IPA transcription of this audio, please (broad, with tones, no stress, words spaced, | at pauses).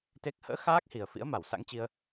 t̪e˦˥k̚ hə̰ː˧˥ xaː˦˥k̚hi˨˩ə̯ fḭ˧˥ə̯ma˧˩wsa̰˧˥ŋ t͡ɕi˧ə̯